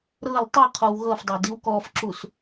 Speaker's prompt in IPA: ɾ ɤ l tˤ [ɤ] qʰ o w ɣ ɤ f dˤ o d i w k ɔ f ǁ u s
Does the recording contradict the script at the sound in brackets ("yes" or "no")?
no